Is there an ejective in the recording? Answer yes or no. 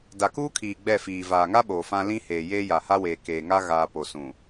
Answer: no